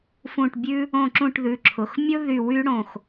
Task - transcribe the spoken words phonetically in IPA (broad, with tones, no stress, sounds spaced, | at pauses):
f ũ˦˨ ʈ bʲ ʉ˥ | õ˦˨ ǁ ũ˦˨ ʈ ð ʉ˩˧˩ ǁʰ ʊ˩˧˩ x mʲ ʊ˥ ð y˦˨ w y˥ ɽ õ˦˨ x